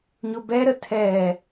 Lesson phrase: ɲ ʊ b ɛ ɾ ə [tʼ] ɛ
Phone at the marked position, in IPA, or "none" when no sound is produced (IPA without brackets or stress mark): tʰ